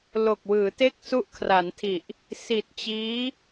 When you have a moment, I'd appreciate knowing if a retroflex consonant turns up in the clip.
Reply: no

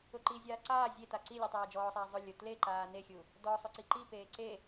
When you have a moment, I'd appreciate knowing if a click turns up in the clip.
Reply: yes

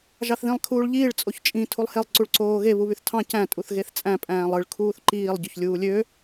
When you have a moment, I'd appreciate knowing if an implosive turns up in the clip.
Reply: no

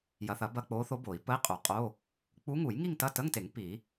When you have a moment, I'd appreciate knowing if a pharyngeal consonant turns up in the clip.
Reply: no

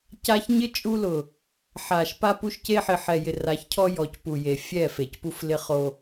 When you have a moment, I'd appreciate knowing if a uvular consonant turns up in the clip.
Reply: yes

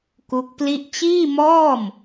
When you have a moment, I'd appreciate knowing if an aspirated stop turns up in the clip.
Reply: no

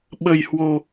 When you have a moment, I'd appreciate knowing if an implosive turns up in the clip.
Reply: yes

